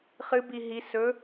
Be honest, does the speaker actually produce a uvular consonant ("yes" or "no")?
yes